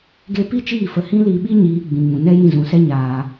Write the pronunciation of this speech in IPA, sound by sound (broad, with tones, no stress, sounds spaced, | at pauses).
ɡ e˦ p i˦ t͡ʃ iː˦˨ f ə˧ h ĩ˦ l i˧ ɓ i˦ ɲ iː˧ ɡ͡b ĩ˧ ŋ ũ˧ n ɛ˦ j ĩ˦˨ z ũ˧ s ɛ˦ ɲ aː˧